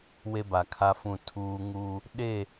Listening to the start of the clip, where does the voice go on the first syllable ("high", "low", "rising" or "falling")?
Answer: high